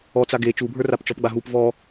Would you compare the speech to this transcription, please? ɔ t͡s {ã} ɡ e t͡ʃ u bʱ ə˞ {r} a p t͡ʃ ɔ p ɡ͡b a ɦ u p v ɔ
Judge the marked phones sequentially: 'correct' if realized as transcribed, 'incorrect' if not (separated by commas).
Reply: incorrect, correct